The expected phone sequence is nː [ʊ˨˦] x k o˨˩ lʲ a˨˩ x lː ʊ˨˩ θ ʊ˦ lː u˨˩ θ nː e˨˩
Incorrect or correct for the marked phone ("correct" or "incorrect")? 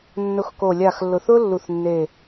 correct